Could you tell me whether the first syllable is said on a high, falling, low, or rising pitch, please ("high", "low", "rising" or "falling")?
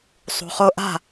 low